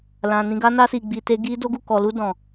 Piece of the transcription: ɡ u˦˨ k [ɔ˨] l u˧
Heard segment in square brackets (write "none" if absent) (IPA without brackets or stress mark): ɔ˨